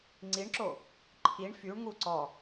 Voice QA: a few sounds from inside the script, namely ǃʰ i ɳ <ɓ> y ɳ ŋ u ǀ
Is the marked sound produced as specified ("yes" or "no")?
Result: no